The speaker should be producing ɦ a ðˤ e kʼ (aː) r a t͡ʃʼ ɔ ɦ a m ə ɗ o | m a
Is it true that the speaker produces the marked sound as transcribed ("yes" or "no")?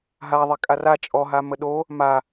no